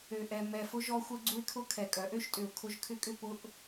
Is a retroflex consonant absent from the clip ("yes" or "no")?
yes